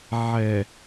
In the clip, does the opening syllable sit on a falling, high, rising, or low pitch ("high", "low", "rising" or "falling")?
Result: low